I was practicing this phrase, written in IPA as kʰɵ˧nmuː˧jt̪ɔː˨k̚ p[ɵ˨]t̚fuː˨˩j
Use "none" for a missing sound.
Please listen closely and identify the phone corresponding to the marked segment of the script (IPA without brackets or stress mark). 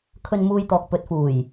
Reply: ɵ˨